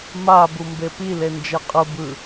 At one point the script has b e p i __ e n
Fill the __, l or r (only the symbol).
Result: l